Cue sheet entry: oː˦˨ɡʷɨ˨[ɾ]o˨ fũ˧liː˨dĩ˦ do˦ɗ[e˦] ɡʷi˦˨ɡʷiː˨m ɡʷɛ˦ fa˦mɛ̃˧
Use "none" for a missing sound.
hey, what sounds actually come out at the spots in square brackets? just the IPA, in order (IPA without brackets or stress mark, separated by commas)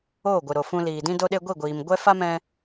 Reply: ɾ, e˦